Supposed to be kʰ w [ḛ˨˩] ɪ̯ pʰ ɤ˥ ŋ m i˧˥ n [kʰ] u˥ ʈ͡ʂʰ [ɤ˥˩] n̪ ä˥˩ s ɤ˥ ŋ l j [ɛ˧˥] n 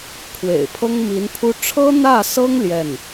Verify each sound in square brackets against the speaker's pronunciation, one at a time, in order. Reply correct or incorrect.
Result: correct, incorrect, incorrect, incorrect

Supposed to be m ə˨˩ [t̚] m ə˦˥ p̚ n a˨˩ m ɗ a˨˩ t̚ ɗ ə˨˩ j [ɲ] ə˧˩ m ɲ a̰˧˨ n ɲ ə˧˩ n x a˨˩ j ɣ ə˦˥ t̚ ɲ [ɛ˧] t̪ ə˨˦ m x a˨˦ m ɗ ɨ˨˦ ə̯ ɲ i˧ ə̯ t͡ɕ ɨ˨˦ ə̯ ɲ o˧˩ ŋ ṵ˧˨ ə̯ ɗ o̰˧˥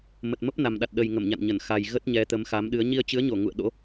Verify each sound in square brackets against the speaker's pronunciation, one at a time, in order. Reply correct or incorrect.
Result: correct, incorrect, incorrect

